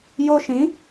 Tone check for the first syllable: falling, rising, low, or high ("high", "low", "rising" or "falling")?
high